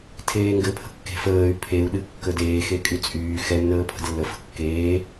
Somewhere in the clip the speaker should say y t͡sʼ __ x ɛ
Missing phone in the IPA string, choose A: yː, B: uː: A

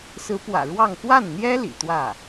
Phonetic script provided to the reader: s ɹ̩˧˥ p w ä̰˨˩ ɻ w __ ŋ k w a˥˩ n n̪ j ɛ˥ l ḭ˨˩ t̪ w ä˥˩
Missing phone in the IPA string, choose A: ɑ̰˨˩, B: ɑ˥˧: B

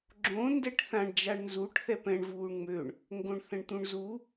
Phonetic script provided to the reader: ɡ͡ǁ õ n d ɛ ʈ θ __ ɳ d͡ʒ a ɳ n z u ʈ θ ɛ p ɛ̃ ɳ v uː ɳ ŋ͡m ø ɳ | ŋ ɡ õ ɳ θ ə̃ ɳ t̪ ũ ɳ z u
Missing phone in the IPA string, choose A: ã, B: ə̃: A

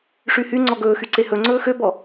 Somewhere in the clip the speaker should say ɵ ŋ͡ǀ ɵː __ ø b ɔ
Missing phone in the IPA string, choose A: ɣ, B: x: B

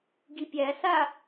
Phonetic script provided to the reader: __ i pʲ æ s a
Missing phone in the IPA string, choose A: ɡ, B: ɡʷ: A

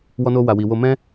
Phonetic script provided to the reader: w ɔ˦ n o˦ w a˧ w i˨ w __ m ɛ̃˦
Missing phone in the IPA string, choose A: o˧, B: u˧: A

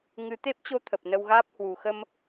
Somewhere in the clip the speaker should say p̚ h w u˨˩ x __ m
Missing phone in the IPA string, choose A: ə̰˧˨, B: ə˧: B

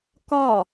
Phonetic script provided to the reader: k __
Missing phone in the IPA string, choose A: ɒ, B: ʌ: A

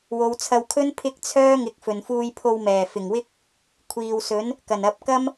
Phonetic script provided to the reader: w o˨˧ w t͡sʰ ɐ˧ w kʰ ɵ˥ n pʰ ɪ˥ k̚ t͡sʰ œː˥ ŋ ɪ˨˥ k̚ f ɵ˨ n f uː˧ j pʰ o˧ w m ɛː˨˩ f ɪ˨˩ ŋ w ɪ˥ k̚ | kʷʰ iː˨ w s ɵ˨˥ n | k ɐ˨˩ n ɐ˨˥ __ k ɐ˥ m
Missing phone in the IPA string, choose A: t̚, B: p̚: B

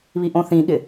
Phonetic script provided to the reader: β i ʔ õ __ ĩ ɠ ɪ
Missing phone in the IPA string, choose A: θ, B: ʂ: A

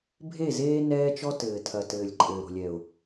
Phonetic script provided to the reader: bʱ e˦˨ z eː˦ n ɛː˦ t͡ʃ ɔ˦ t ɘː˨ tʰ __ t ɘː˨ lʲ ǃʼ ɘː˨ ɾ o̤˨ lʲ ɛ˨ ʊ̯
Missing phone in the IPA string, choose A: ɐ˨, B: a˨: A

